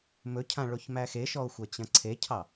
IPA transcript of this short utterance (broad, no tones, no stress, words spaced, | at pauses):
mɵcʰã ɭoçmæxeʃɔo̯ xʷɐt͡ɕɐ̃ǀʰecʰɑ